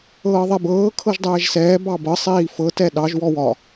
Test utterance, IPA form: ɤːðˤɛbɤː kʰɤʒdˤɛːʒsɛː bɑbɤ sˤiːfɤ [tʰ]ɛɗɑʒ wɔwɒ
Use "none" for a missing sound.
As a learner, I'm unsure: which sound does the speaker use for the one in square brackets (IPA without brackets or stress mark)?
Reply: t